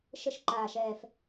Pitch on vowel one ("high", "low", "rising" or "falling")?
falling